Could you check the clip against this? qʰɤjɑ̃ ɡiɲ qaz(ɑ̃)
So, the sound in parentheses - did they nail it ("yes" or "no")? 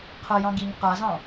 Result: yes